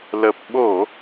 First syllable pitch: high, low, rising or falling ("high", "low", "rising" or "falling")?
low